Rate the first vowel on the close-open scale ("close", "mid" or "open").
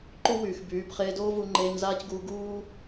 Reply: close